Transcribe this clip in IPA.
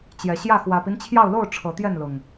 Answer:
t͡ɕ j ɛ˨˩ ɕ j ä˥˨ x w ä˨˩ p i˦ n t͡ɕʰ j ɑ˥˨ ʊ̯ l o˥˨ ʊ̯ ʈ͡ʂʰ ɤ˨˦ t̪ j ɛ˥˨ n l ʊ˨˩ ŋ

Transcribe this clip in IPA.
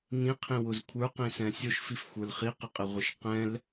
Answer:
ŋ ĩ qʰ ĩ w ʊ z kʷʰ ə˞ q ĩ s ɛ̃ sʲ ʊ ʃ f i f xʷ ə˞ l χ i q ɪ qʼ ɪ ʁʷ ɪ ʃ q ɛ̃ l

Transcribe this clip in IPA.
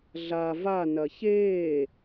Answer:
ɮ a v a n ɐ ç eː

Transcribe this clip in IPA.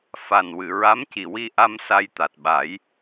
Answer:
f a˨˩ n w ɨ˨˩˨ ɹ a˧˥ m c i˨˩ w i˧ ʔ a˧ m s a˧ j t̪ a˨˩ t̚ ɓ a˨˩˦ j

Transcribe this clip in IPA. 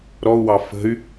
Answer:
ɾ ɔ u̯ w ɑ f ə̤ y̯

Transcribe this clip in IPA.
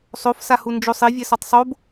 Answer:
sˤ o f s a h u n d͡ʒ o sˤ i vʲ ɛ s ɔ tˤ sˤ o b

